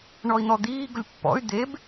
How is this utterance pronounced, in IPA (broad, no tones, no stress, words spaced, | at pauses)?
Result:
ɳɔi̯n̪ɔd̪iː ɡʊlʲpːɔ̰y̯ d̪eb